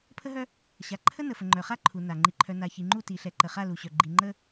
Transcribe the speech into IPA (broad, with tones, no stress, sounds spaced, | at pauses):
pʰ ə˦ ɦ œ˦ | ɕ a˨ ǃʰ ə˦ n ə˨ f ə˨ ŋ͡ǃ œ˨ χ a˦ ǃʰ u˨ n a˨ ŋ͡ǃ i˨ ǃʰ œ˨ n a˨ ç i˨ ŋ͡ǃ u˦˨ t i˨ ɬ ɛ˨ ǃ ə˨ χ a˦˨ l u˨ ɕ œ˨ ɡ͡ǃ i˨ ŋ͡ǃ ə˦